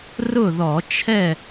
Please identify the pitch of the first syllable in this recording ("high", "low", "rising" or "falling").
falling